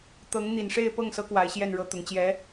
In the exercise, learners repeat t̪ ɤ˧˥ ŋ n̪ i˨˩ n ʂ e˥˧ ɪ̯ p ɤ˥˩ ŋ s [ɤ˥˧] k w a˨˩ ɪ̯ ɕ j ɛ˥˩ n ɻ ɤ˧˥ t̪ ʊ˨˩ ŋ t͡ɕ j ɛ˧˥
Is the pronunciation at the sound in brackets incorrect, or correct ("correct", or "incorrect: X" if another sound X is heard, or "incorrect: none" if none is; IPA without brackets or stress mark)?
incorrect: ɤ˧˥